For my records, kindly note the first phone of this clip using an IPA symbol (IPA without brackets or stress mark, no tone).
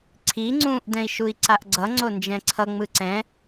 ǀʰ